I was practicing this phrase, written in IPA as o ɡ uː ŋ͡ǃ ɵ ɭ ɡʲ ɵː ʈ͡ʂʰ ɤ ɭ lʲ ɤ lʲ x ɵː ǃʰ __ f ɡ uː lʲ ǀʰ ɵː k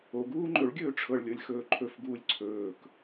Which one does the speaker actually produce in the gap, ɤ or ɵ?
ɵ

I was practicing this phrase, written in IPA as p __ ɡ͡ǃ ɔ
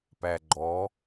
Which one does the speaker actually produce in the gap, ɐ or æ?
æ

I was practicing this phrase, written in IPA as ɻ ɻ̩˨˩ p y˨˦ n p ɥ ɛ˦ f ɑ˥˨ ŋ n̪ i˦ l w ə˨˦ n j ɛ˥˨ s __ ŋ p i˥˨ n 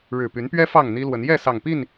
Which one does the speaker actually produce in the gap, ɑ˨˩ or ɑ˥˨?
ɑ˨˩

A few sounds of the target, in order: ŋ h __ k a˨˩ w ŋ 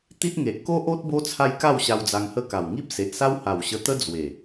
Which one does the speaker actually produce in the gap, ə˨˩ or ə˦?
ə˦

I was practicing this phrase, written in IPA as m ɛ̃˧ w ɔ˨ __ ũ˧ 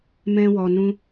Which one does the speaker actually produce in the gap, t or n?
n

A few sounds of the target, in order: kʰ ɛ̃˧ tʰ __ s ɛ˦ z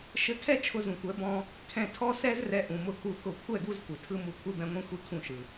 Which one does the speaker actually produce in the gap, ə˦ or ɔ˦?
ɔ˦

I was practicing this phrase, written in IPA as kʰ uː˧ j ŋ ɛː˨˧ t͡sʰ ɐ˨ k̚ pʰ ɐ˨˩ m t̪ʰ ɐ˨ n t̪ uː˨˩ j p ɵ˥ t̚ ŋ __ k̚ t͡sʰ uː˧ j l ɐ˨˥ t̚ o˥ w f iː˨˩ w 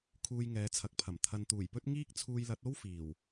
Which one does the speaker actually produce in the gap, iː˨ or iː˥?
iː˥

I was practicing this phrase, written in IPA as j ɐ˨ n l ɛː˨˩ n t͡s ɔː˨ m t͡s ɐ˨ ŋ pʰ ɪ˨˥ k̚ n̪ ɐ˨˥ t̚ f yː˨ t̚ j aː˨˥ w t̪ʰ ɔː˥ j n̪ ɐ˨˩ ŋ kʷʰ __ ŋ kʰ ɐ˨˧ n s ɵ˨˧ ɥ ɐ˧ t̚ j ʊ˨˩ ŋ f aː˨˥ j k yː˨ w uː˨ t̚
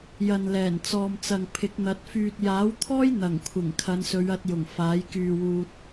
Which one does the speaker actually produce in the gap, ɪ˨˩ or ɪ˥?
ɪ˨˩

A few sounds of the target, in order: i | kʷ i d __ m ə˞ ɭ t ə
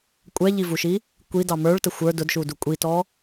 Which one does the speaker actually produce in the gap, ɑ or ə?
ɑ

